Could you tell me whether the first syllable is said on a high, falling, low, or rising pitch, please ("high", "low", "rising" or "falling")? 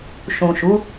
low